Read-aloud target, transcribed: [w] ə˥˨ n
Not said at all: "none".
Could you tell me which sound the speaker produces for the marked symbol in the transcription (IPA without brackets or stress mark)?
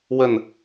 w